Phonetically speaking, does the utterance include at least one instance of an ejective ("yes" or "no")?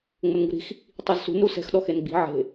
no